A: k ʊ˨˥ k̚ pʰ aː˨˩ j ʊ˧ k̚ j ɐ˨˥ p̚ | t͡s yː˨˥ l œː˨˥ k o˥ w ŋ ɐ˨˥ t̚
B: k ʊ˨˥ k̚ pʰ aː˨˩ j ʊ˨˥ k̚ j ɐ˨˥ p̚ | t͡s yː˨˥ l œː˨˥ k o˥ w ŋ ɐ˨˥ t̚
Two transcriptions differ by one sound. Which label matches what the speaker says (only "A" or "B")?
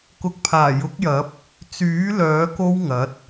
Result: B